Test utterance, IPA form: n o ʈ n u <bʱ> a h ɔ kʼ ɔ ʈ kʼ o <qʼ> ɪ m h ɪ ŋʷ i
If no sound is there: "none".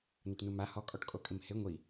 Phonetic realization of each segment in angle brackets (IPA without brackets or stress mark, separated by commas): m, kʼ